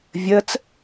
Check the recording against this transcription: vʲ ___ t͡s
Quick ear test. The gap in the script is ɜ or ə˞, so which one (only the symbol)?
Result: ɜ